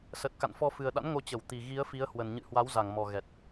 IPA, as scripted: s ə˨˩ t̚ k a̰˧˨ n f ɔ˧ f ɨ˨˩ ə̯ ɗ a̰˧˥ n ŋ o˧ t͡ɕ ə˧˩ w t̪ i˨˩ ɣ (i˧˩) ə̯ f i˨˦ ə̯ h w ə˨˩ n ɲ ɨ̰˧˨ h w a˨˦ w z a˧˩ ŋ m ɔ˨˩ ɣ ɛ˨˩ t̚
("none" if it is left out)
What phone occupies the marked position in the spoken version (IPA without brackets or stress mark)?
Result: i˨˦